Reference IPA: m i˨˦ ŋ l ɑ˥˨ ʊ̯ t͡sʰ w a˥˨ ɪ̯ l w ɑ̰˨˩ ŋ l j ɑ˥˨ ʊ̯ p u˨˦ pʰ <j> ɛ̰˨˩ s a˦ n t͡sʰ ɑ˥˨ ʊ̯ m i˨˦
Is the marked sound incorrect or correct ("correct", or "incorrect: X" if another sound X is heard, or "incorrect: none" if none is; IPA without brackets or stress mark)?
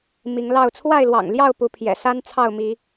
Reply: correct